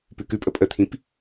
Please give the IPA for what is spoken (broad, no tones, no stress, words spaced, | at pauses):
pʉkʉpʼə pʼət̪ʰĩp